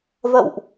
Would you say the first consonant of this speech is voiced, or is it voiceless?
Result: voiced